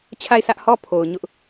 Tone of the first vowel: falling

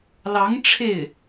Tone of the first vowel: rising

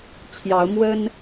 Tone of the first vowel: rising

